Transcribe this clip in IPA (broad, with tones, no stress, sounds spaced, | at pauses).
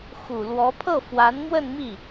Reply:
x u˨˩ l w ɔ˧˥ pʰ ɤ˥˩ f w a˧˥ n m w ə˥˧ n m i˥˩